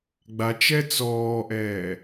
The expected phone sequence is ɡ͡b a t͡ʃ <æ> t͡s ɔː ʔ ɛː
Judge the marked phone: incorrect: ɛ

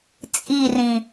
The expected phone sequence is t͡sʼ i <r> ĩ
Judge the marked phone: correct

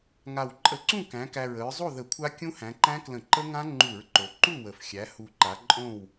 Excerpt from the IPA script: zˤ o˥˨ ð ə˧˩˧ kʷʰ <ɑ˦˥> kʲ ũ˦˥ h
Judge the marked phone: incorrect: a˦˥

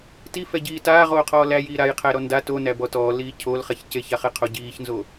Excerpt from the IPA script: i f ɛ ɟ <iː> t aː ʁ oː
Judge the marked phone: correct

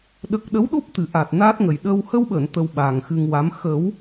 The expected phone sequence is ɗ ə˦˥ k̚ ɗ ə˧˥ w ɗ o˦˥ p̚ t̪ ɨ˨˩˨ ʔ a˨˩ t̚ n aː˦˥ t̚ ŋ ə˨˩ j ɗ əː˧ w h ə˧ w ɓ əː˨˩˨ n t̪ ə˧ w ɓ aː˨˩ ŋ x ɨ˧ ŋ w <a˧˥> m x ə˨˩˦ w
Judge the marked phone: correct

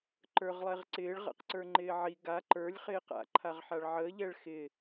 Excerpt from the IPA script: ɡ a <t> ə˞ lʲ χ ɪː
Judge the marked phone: incorrect: ǃ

